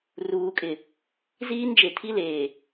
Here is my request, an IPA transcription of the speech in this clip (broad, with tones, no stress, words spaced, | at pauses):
ruː˨kʼɪ˨ | ziː˦nd͡ʒe˨tʰi˦leː˨